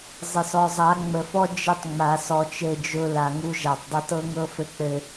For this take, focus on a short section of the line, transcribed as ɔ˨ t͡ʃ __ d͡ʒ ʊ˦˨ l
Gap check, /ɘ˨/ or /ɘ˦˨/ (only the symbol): ɘ˦˨